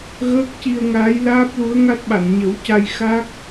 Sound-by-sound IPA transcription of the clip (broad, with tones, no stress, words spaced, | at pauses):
ɣəː˦˥k̚ci˧ə̯ŋaː˧˥jlaː˦˥p̚ lu˧˥ə̯ŋa˦˥t̚ɓa˨˩˨n ɲə˨˩˦w ca˧jxa˦˥k̚